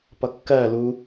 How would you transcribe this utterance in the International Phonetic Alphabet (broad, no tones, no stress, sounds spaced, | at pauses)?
p ʌ kː ɜ l u